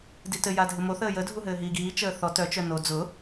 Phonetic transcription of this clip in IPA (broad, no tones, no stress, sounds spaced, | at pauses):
d i t ɘ j a dʱ ɘ m o θ əː j ə dʱ u ɦ ɘː ɦ iː ɡ iː t͡ʃ əː θ ɔ t œ t͡ʃ œ n o d͡z ʊ